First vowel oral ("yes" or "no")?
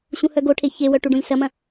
no